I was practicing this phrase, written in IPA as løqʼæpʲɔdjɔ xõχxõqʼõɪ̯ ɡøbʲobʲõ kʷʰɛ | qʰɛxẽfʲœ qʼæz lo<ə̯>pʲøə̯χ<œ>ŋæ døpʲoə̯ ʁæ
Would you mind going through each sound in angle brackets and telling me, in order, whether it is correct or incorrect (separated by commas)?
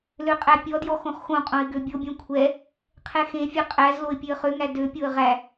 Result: incorrect, incorrect